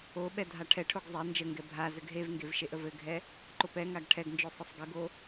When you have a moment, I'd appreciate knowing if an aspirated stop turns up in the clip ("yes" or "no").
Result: yes